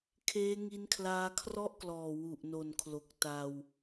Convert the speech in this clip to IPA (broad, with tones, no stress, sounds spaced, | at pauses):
kʰ eː˦˥ ŋ i˦˥ n kʰ l aː˦˥ kʰ r ɔ˥˩ ʔ k l ɔː˨˩ w u˨˩ ʔ n o˨˩ n kʰ l o˨˩ k̚ t a˧ w